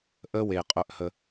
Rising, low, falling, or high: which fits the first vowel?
high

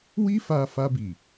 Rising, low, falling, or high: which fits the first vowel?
high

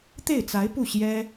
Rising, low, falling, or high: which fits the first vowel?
falling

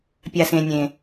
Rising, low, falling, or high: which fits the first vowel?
low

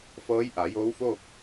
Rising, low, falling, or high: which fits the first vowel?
rising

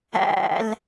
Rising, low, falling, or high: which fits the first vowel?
low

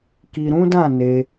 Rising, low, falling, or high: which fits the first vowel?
low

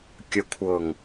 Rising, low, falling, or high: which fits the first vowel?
low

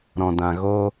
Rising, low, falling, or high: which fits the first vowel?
low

